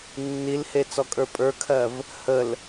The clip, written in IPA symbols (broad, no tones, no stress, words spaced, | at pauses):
nːilhe t͡sɔkʼə˞pʼə˞kʰɜv | həl